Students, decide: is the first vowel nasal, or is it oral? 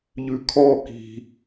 oral